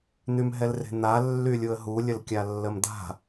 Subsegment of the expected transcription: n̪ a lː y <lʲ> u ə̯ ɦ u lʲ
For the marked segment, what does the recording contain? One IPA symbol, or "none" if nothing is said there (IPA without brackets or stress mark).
lʲ